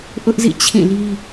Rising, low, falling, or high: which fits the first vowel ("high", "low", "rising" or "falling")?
high